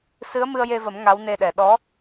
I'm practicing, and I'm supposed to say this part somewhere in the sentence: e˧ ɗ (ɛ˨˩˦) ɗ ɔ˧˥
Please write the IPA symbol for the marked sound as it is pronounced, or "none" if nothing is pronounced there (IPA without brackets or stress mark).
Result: ɛ˨˩˦